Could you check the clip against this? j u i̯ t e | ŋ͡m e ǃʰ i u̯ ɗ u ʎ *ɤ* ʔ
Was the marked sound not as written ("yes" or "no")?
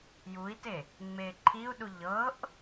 no